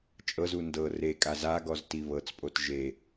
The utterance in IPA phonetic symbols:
t͡ʃʼ ɤ z u n d ɤ r e kʼ a z a ɡ ɔ z t i β ɤ t͡s pʼ o t ʒ e

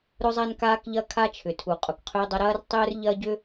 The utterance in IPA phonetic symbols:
ɾ ʊ˥ zˤ a˥ n k aː˥ k ʎ ɐ˥ kʰ a˥ t͡ʃʰ ʏ˩ tʰ u˩ qʼ ʊ˩ k qʰ ʏː˥ dˤ ɐ˥ ɾ ɐː˥ r tˤ ʏː˥ r ʎ ɐ˥ ɟ ʏ˥

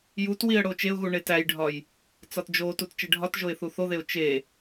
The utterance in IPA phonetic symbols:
j u t w i ə̯ ɽ o t͡ʃ e ʊ̯ ɣ u ɳ e t æ j ɖʱ ɒ j | t͡s ɒ t d͡ʒ o t u t t͡ʃ e ɖʱ ɒ t ʒ o ɪ̯ θ u θ o ð e ʊ̯ t͡ʃ e

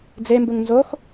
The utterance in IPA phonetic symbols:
d͡z e m b u ŋ n z o x

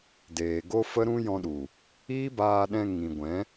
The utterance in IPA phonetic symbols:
d eː˨ ɡ o˦ f ə˦ ɾ ũ˦ j ɔ̃˧ ɗ u˨ | iː˦ b aː˧ ɗ ɛ̃˧ ŋ ĩ˨ ɡʷ ɛ̃˨˦

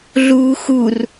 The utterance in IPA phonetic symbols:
ɮ uː x u r

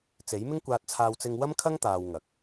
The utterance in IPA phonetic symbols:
t͡s e˨˥ j m ɪ˥ ŋ kʷ aː˧ t̚ t͡sʰ aː˧ w t͡s ɪ˧ ŋ w ɐ˥ m kʰ ɐ˥ ŋ t̪ aː˧ w ŋ ɐ˨˥ k̚

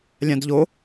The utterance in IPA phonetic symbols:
lʲ ã d ʎ o

